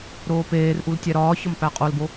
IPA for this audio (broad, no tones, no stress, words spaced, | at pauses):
ɾoːpeːrʔul tʲæɾɒːçɒm pæqʼolbo